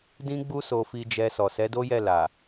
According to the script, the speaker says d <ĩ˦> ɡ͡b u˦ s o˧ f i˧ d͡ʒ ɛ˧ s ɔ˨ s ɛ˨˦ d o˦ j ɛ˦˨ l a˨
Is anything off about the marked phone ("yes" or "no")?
no